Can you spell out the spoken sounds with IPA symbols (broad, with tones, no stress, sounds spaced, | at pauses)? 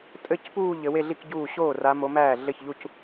tʼ ɘ˥˧ c p uː˥˧ ʎ ɘ˨˦ w e˥˧ ɮ i˥˧ k ɟ uː˥˩ ɕ oː˥˩ r a˨˦ m o˨˦ m æː˥˩ ɮ ɘ˥˩ ç ʎ u˥˧ c